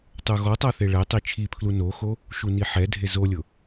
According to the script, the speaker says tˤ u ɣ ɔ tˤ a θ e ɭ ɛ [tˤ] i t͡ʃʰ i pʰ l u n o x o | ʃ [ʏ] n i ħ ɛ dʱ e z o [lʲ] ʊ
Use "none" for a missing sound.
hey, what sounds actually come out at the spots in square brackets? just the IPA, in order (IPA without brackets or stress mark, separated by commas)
tˤ, u, lʲ